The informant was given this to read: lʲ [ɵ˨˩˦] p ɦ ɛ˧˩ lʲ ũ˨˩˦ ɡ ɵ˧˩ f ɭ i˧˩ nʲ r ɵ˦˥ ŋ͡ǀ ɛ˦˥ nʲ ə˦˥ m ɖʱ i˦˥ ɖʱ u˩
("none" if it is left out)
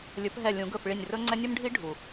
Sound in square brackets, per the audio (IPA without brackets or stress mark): ɵ˨˩˦